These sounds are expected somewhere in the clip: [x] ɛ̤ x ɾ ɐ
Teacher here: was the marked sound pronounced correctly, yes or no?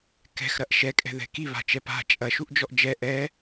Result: no